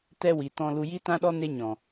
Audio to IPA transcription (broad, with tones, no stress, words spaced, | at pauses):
tɛ˦ wi˨tɔ̃˧lu˧ ji˦tã˦ɗɔ˦ ne˦ɲɔ̃˨